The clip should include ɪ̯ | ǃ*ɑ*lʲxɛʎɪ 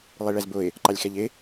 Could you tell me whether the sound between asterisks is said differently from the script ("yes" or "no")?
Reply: no